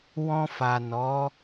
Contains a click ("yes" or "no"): no